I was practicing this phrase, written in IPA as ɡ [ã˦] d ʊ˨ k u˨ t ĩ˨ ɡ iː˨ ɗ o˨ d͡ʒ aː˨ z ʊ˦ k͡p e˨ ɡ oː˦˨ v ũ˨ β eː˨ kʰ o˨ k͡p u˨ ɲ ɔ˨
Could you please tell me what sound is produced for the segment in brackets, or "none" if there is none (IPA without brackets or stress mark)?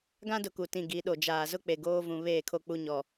ã˦